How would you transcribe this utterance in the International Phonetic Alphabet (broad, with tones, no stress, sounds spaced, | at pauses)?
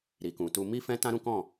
ɾ i˨ k ũ˨ t u˧ m i˦ f ɛ̃˦ t ã˦ ɾ ũ˦ k ɔ̃˦˨